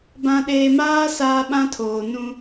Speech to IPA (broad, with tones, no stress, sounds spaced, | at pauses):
b ã˨ ɗ eː˨ m aː˦ s aː˦ ɓ ã˦ tʰ oː˨ n ũ˦